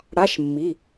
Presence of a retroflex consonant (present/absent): present